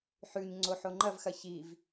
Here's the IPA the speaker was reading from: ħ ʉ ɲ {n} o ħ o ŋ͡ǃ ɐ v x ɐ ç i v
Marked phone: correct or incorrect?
incorrect